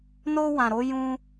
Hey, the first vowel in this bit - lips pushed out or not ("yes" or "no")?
yes